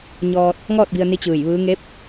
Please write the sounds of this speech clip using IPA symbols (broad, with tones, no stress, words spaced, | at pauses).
ɲɔː˧t̚ | ŋɔː˥˨t̚bi˧ə̯ni˧˥ t͡ɕɯː˧˩jʋɯː˧˥ ŋe˧˥p̚